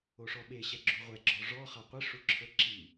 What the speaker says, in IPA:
o ʂ ɔ ɓ e ɕ ɛ ɡ͡ǁ u ʁʷ ɛ ɡ͡ǁ ɔ ʐ ɔ χ a qʷ e ʂ u ǁʰ ɤ ǁ i

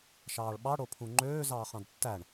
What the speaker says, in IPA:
ʃ ɑː ɭ ɓ ɑ ɽ o pʰ ũ ŋ͡ǃ øː z ɑː χ ɑ̃ d tː æ ɳ

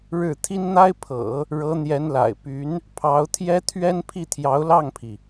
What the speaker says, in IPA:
ɻ ɻ̩˥˩ t̪ʰ i˥ n n̪ a˥ ɪ̯ pʰ ɤ̰˨˩˦ | ɻ ɤ˧˥ n̪ j ɛ˧˥ n l a̰˨˩ ɪ̯ p y˧˥ n | pʰ ɑ˧˥ ʊ̯ t̪ʰ j ɛ˥ t̪ʰ ɥ ɛ˥ n pʰ i˥˩ t̪ʰ j ɑ˧˥ ʊ̯ l ɑ˥˩ ŋ pʰ i˩

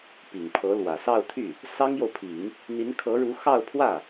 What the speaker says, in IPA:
p i˨˩ ŋ pʰ ɤ˧˥ l w ä˨˩ s ɑ˥˧ ʊ̯ t̪ʰ y˥˩ | s ɑ˥ ŋ j o˨ ʊ̯ pʰ i˨˩˦ ŋ | n̪ i˧˥ n kʰ ɤ˧˥ ɻ u˧˥ x ɑ˥˧ ʊ̯ pʰ w ä˥˩

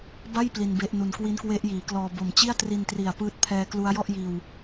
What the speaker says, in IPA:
b a˥˩ j p l i˧ n b e˦˥ ʔ n u˧ n k w i˦˥ n k w e˦˥ ʔ j iː˩˦ k l ɔː˧ b o˨˩ m t͡ɕ i˥˩ a̯ t r i˧ n t r i˨˩ a̯ p ɯː˦˥ t̚ pʰ ɛː˦˥ k l u˦˥ a̯ j ɔ˥˩ ʔ j iː˧ w

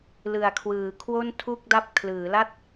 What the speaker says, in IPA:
l ɯ˩˦ a̯ kʰ w ɯː˩˦ kʰ w o˥˩ n tʰ u˥˩ k̚ d a˥˩ p̚ kʰ l ɯː˩˦ l a˥˩ t̚

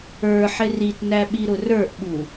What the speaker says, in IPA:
ə˞ ħ ɪ r i t n æ ɓ i ɾ ʊ r ə˞ ʔ ɓ u

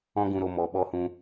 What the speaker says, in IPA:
ɔ̃˦ ɡ ũ˧ ɾ o˧ m ɔ˨ ɓ ɔ˧ h ũ˧

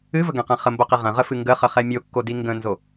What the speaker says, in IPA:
ɨ v ə ɡ ɛ̃ q ɛ̃ χ ə m b o q i ʁ ə̃ ʁ ə f ɨ ŋ ɡ ə χ ə χ ɛ mʲ o kː o d i ŋ ɡ ə̃ n z o

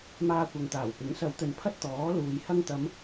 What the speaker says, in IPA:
m aː˧ kʷ ɐ˨ ŋ t̪ aː˨˩ w p ɪ˨˥ ŋ s ɐ˨˧ w t̪ ɵ˨ n pʰ ɐ˥ t̚ t̪ ɔː˨˥ l uː˨ j h ɐ˧ ŋ t̪ ɐ˨˧ m

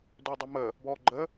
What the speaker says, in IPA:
d ø dˤ ø m ə | b ɔ ɡ͡ǃ ə

